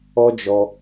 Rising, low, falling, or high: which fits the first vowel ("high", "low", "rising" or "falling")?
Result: high